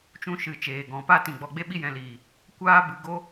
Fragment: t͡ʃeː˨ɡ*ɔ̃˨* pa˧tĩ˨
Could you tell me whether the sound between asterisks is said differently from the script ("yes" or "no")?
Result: no